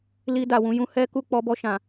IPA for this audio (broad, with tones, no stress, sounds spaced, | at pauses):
l i˧ d a˨ w ũ˧ j ũ˧ h ɛ˦ k u˦˨ k͡p ɔ˧ b ɔ˧ ʃ ã˨